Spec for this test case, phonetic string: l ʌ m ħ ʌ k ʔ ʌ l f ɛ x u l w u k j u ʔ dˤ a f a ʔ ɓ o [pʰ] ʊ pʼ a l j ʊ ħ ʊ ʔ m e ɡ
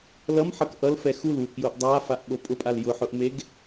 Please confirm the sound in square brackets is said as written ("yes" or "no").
no